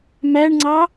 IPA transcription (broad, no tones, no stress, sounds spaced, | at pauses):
m æ ɳ ŋ͡ǀ ɑ